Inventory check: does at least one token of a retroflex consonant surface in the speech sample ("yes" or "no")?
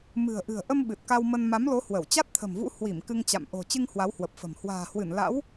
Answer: no